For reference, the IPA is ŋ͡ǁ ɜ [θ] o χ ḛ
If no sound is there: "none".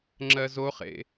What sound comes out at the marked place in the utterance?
z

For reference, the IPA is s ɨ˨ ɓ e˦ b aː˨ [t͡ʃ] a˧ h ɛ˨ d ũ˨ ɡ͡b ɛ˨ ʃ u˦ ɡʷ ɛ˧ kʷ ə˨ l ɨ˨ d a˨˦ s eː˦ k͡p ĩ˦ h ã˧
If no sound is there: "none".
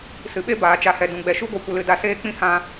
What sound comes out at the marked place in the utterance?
t͡ʃ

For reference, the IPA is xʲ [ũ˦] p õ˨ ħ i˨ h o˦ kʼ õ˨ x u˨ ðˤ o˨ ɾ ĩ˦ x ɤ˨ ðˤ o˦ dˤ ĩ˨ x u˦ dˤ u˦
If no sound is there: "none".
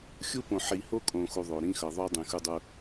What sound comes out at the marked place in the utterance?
u˦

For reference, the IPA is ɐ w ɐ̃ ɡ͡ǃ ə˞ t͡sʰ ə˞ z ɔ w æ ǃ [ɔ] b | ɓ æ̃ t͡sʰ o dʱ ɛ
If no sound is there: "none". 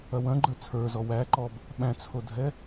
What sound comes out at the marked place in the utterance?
ɔ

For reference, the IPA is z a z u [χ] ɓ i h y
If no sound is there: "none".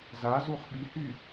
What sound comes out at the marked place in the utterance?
χ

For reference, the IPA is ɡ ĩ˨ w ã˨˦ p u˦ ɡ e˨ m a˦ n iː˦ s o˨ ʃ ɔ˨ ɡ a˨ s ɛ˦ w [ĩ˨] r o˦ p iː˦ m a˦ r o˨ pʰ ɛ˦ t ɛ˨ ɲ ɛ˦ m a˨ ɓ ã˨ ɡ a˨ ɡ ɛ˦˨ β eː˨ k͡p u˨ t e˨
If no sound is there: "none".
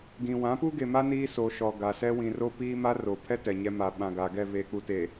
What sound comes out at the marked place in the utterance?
ĩ˨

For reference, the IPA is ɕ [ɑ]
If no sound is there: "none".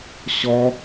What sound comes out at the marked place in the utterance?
ɔ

